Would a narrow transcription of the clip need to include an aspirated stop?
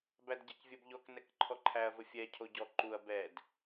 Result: yes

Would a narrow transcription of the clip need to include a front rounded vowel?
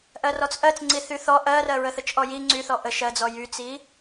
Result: yes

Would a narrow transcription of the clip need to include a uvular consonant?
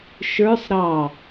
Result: no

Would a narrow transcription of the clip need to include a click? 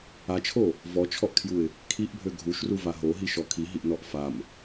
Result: no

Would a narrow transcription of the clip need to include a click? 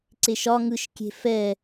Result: yes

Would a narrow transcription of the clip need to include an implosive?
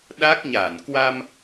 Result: yes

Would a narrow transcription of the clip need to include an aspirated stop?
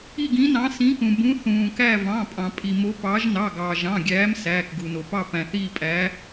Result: no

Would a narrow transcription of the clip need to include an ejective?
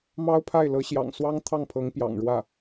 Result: no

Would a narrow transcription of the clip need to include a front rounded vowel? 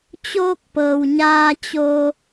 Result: no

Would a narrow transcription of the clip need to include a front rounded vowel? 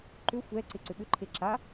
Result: yes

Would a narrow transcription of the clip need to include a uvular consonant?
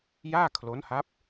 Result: no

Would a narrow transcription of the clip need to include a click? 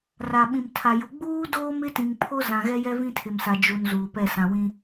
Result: no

